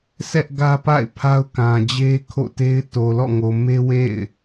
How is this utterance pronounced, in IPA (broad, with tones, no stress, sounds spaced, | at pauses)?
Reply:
sʰ ɛ˦ ʔ ɡ ä˦ p a̰˦˨ ɪ̯ pʰ a˦ ʊ̯ k ã˨ d͡ʑ e˦ kʰ o̰˦˨ t e˦ ɪ̯ t o˨ l ɔ̰˦˨ ŋ o˨ m e˦ w ḛ˦˨ ɪ̯